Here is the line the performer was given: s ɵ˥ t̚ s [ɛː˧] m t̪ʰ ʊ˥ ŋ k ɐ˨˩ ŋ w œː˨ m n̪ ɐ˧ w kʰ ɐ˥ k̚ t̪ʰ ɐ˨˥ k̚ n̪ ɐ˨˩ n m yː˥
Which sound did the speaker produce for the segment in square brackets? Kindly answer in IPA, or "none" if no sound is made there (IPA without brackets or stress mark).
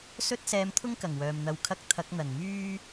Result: ɛː˧